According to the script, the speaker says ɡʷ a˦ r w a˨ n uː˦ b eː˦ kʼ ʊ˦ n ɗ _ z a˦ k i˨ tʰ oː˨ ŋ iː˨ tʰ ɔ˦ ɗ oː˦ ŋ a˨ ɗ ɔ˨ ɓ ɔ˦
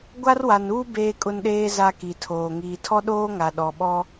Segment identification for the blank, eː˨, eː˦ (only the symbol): eː˦